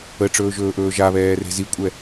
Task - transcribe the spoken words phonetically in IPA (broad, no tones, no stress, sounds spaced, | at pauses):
ə ʈ͡ʂ ɵː ʒ ɵː ʔ ɵː ʒ a β ɛː r e̤ z i kʷʼ ɛ